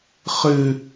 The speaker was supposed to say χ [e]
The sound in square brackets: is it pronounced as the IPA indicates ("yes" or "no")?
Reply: no